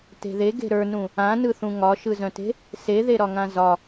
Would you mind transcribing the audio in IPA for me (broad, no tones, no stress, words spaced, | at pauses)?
te̤ðe ɡe̤ɾə˞nũ | ãnɯθũ ŋɒʃɯzœ̃te̤ | seðeɾɒŋã zɒ